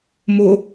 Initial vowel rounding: rounded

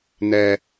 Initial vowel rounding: unrounded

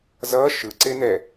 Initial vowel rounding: unrounded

